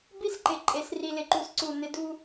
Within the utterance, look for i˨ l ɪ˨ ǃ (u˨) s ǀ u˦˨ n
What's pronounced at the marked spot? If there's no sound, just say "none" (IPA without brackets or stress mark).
u˨